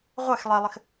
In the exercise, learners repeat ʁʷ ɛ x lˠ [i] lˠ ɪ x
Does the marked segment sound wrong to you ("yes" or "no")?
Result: no